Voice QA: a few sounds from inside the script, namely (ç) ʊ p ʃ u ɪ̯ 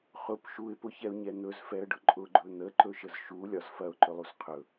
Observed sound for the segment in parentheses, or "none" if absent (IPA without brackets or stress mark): χ